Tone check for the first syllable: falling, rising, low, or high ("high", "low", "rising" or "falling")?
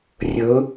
rising